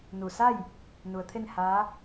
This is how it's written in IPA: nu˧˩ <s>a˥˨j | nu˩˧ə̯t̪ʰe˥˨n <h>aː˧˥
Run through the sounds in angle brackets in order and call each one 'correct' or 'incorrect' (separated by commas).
correct, correct